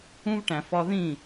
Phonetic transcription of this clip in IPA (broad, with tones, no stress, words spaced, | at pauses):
ũ˥v ʈæ̃˩fɒ˧ðĩ˥˩